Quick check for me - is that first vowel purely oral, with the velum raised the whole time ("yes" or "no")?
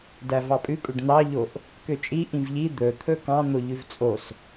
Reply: yes